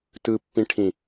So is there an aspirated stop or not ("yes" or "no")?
yes